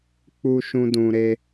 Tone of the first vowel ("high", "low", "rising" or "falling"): high